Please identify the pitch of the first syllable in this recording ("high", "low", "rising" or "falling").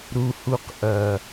high